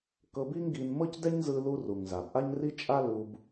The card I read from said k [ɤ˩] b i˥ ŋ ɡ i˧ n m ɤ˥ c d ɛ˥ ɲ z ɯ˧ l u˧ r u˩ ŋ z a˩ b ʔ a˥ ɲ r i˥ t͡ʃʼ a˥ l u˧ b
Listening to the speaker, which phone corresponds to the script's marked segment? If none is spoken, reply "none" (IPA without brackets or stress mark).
ɤ˧